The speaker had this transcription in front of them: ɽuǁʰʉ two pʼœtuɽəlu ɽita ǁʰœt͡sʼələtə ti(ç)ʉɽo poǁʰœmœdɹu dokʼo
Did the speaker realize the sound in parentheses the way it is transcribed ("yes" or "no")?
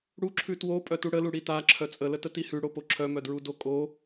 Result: no